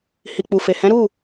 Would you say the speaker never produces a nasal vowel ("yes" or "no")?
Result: no